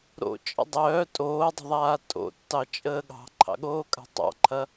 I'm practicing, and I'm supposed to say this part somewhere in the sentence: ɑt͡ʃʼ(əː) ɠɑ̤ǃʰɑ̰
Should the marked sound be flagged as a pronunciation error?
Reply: no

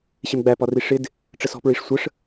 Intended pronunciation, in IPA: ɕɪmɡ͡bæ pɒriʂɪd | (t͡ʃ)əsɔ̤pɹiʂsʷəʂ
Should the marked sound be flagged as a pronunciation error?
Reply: yes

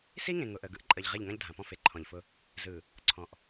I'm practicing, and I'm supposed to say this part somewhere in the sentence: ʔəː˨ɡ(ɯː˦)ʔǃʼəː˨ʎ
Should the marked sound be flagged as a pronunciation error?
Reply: yes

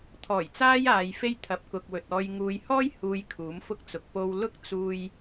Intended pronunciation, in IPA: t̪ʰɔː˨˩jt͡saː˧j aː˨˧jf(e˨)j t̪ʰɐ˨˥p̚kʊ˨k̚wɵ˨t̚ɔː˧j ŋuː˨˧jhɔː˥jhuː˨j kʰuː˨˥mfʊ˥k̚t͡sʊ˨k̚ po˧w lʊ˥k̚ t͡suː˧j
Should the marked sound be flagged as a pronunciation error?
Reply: yes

